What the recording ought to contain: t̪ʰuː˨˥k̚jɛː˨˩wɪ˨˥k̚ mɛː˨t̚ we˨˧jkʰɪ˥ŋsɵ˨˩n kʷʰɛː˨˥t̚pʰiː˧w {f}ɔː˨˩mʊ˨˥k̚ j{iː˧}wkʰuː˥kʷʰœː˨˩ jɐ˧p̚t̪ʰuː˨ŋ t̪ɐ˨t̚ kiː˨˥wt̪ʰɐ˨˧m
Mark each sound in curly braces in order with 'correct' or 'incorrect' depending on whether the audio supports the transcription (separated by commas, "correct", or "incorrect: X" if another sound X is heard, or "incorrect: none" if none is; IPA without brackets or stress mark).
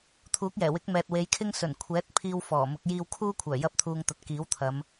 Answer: correct, correct